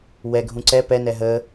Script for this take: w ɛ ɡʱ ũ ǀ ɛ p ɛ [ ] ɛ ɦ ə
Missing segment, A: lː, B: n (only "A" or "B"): B